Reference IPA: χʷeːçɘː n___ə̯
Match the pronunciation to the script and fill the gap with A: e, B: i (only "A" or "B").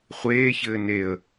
A